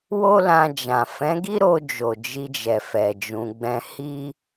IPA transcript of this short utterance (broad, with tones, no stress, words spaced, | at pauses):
wo˦lã˧d͡ʒã˨ fɛ̃˨˦ɡi˦ɾo˧d͡ʒo˨ d͡ʒi˧d͡ʒɛ˨fɛ˨ d͡ʒũ˧ɡ͡bɛ̃˦ hi˦